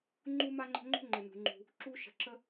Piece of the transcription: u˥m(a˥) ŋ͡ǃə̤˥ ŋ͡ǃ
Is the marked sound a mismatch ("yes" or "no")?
no